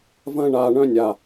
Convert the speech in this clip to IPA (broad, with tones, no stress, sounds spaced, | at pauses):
v ɐ̃˧ ɳ aː˨ ɳ œ̃˧ nʲ a˨